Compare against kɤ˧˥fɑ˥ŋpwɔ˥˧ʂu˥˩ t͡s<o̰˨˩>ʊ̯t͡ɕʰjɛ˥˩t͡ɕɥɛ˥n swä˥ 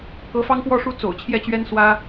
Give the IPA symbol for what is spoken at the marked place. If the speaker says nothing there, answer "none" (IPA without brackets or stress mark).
o̰˨˩